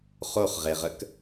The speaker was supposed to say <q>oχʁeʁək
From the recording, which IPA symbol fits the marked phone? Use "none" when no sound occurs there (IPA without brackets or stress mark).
χ